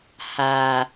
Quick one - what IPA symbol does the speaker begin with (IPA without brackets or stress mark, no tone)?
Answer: h